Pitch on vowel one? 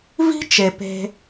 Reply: high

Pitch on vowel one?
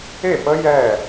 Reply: falling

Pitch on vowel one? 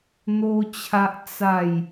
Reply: high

